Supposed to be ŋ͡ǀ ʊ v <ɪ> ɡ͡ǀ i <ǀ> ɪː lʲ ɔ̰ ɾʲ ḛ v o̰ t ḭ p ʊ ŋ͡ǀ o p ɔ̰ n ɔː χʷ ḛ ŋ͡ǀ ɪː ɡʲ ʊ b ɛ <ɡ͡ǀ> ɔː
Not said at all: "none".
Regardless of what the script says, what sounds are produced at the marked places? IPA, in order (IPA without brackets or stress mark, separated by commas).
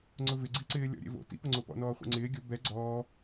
ɪ, ǀ, ɡ͡ǀ